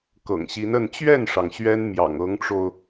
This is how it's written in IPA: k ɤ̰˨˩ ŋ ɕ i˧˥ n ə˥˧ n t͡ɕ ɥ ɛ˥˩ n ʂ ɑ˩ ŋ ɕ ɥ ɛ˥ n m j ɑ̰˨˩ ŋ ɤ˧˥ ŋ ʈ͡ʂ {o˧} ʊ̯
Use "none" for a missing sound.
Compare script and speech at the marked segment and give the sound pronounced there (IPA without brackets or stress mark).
o˧